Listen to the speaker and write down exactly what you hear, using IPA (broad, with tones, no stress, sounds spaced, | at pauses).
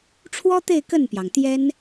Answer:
ʈ͡ʂʰ w ɔ˥ t̪ e˥˧ ɪ̯ k ə˥˩ n p j ɑ˩ ŋ t̪ j ɛ˥ n